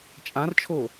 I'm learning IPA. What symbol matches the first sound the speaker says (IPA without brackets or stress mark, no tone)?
t͡ʃʼ